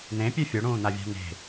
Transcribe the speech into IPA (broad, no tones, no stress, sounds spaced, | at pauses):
n̪ ẽ pʲ ʉ fʲ o ɽ ũː n̪ a vʲ a̤ n e̤